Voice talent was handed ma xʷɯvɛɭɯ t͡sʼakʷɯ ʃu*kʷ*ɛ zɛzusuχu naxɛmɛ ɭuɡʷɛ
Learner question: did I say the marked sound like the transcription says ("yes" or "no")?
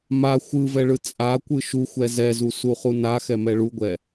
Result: no